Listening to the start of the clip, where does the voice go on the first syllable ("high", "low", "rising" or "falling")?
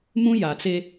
high